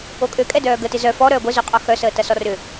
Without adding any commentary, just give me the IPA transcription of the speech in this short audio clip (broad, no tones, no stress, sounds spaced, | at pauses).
o kʼ ø kʼ ɛ d œː ɡ ə t ɪ z œ f ɔ ɾ œː ɡʷ e z o qʼ ɔ x œ s əː t ɐ s ɔ r ʏ